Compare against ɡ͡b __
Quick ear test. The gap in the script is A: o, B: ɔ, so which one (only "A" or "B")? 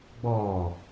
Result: B